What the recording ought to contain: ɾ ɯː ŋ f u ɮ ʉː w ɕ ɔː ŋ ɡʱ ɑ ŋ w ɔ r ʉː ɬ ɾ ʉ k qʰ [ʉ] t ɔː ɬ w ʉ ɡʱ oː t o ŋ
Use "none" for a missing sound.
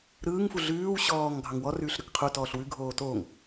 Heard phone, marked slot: u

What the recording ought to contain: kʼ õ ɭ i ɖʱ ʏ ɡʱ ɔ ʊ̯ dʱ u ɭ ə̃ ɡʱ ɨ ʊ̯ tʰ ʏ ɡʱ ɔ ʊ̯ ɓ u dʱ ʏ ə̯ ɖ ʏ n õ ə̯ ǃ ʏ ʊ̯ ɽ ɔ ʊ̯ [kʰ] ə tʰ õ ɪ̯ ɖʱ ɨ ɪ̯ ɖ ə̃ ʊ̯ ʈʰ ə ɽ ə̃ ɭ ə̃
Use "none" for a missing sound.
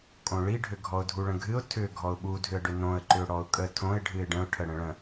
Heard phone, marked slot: kʼ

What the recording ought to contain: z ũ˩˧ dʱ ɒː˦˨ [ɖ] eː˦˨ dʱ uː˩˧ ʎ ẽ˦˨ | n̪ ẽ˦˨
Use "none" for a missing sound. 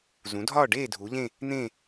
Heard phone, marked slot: ɖ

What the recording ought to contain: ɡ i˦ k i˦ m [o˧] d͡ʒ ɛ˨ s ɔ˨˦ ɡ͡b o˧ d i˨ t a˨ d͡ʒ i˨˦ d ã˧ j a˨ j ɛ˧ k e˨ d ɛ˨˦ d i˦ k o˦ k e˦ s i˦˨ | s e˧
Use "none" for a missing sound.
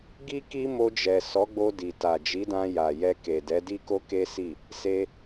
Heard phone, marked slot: o˧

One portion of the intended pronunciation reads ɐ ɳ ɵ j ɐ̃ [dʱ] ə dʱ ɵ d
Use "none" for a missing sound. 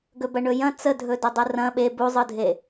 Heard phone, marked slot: t͡s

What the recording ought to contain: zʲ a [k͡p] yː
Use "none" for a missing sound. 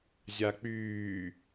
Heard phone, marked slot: k͡p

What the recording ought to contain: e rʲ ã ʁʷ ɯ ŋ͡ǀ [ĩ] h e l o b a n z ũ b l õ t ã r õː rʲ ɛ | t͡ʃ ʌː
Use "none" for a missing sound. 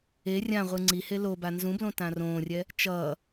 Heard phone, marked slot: i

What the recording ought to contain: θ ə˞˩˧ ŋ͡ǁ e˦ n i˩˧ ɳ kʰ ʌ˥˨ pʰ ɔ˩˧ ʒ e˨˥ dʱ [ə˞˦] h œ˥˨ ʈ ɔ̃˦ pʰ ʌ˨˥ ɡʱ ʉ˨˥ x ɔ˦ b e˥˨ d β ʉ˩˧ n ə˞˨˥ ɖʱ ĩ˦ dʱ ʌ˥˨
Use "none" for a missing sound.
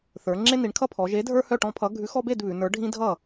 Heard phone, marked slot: ə˞˦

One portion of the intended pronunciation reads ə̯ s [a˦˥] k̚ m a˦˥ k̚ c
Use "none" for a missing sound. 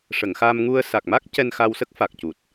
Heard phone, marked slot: a˨˩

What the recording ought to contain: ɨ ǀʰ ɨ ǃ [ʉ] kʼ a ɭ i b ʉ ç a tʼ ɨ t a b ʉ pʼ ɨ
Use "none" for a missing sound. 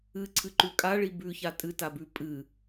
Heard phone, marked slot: ʉ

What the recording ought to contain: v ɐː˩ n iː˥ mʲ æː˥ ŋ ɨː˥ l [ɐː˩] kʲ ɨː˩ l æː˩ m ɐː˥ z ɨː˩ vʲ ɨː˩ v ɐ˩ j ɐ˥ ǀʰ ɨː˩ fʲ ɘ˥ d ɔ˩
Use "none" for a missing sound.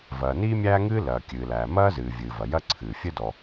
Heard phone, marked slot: ɐː˩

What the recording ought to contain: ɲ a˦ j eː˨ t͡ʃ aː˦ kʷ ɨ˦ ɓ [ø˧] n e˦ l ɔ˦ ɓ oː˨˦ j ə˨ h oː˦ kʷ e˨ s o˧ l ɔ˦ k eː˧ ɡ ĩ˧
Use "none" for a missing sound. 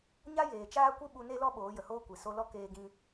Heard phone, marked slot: u˧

